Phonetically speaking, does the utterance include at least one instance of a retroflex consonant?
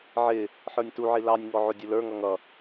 no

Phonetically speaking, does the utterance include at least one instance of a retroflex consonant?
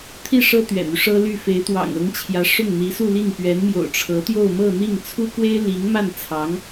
yes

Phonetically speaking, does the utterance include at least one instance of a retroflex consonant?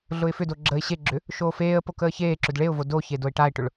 yes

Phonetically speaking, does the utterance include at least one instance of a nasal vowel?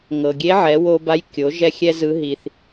no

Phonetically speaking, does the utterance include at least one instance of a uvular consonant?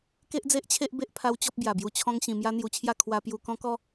no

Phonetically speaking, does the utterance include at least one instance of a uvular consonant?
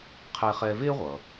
yes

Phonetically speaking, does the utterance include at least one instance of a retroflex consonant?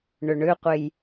yes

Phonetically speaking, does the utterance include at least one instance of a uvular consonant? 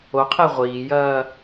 yes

